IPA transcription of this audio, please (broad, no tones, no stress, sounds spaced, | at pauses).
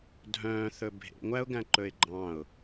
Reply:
dʱ œ̃ː θ ɵ bʱ ḛ ŋʷ æ ʊ̯ ɡ æ̃ ǃ ɵ ɪ̯ ɡ͡ǃ ɑ̃ ʊ̯